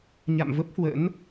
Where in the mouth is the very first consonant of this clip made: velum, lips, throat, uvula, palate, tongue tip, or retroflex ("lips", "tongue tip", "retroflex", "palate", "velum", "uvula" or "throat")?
palate